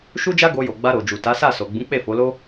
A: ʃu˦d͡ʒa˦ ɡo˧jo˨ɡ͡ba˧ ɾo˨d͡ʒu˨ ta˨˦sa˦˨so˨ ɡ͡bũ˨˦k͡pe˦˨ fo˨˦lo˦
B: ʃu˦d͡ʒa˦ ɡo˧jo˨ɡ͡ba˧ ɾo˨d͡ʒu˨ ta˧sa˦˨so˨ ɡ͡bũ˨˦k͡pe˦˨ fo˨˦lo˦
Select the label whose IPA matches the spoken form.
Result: A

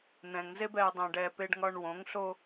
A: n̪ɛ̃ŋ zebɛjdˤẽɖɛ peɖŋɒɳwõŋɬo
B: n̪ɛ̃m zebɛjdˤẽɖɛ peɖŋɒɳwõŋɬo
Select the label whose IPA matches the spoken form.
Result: A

